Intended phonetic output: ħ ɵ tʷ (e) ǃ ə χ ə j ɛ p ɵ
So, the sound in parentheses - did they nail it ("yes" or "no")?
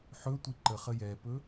no